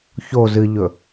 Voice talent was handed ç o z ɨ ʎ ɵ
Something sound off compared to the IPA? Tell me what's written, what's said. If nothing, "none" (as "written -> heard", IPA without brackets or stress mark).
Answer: none